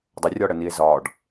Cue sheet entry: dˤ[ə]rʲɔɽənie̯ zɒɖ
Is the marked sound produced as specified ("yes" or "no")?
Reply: yes